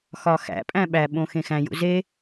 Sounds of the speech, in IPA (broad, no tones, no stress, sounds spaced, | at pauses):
x ɒ x æ̰ pʼ æ̃ ɓ æ ɓ õ x ẽ x æ̃ j ṵ z e